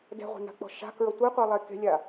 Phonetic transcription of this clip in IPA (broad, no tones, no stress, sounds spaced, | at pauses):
d ɛ̤ ʁʷ e̤ n a̤ k͡p ɔ̤ ʃ a̤ k ɹ ʌ tʷ e qʷ ɛ lˠ e k e̤ lʲ a